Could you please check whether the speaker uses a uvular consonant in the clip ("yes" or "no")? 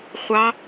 yes